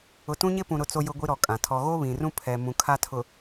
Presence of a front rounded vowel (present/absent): absent